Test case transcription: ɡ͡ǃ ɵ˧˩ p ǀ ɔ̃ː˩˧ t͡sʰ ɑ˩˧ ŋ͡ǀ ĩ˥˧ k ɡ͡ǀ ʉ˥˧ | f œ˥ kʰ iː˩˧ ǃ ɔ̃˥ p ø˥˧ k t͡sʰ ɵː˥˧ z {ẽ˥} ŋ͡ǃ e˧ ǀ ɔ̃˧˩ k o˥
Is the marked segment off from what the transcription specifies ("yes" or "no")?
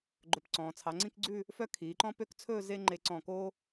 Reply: yes